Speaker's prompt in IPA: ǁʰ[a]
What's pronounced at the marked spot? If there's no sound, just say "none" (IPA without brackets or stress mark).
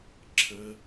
ə